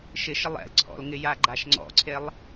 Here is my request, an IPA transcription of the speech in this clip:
ʃ ɪ ʃ ɪ lˠ ɛ̰ l ǀʰ ɔ̰ l ŋ ɪ j a ɡ͡ǃ a ʃ ŋ͡ǀ ɔ̰ ǀʰ e lˠ

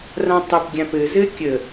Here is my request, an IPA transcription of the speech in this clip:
r ã tˤ ɘ p ɡʲ ã p ɘ z ɘ kʲ ə

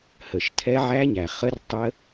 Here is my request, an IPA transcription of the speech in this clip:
h ə˨˩ ʃ tʰ ɛ˦˥ ʕ æ˦˥ ɲ æ˨˩ χ ə˦˥ r tˤ ə˦˥

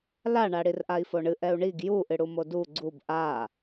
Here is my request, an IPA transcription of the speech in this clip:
l a ɳ a ɽ i r ʔ a i̯ f o ɳ ɨ ʔ ɛ u̯ ɳ i ɡ j u ʔ ɨ ɽ u m o d u ɡ͡ǀ u b ʔ a

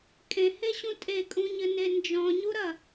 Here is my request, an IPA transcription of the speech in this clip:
kʼ ẽ h e ɕ ũ tʼ e kʼ ũ ɲ ɘ n e n d͡ʒ ɔ̃ ɲ u ɾ ɐ

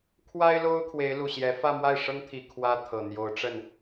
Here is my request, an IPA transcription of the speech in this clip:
kʰ w a˥ ɪ̯ l o˥ ʊ̯ kʰ w e˧˥ ɪ̯ l u˨˩ ɕ j ɛ˧˥ f ä˥˧ m w a˥˩ ɪ̯ ʂ ɤ˥ ŋ t̪ʰ i˨˩ kʰ w ä˥ t̪ʰ ɤ˨˩ n̪ j o˧˥ ʊ̯ ʈ͡ʂ ə˥˩ n

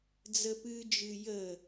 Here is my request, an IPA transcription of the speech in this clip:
d͡z ə p ɨ d͡ʒ ɨ j ə

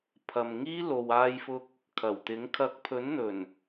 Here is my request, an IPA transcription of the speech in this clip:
pʰ ɐ˨ m ŋ iː˥ l o˨ w aː˧ j f ʊ˧ k̚ | kʰ ɐ˨˩ w t̪ ɪ˨˥ ŋ kʰ ɐ˧ k̚ pʰ ɵ˨˥ n n̪ ɵ˨˩ n

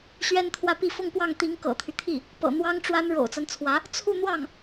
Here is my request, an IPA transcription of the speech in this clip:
ɕ ɥ ɛ˥ n t̪ʰ w ä˥˧ p i˥˧ f ʊ˥˧ ŋ p w ɑ˥˩ ŋ t̪ i˧˥ ŋ k ɤ̰˨˩ t̪ʰ y˦ t̪ʰ i˥˩ | p ɤ̰˨˩ n̪ w ɑ˥ ŋ ʈ͡ʂ w a˥ n ɻ o̰˨˩ ʊ̯ t͡s a˦ n t͡sʰ w ä˧˥ | t͡sʰ u˥˧ n̪ w ɑ˥˩ ŋ

